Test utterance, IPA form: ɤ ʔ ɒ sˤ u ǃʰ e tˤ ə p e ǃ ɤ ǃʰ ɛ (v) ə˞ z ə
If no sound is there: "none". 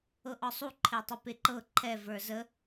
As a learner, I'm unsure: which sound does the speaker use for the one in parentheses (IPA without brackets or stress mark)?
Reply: v